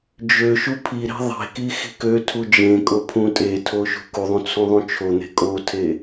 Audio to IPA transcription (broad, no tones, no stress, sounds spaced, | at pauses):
d͡ʒ ø ʃ u pʰ i ɾ e̤ ðˤ e̤ k i x i̤ k ø tʰ u d͡ʒ ẽ kʼ o pʰ ũ tʼ e tʰ o ʃ ṳ k u ðˤ ũ t͡sʰ ũ ðˤ ũ t͡ʃʰ o n̪ e̤ kʼ o tʰ e